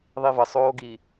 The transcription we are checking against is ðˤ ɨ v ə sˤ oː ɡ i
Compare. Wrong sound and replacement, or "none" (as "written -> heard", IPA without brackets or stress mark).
ɨ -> i